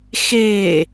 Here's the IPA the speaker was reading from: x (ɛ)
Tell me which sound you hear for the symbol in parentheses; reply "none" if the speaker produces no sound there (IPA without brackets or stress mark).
e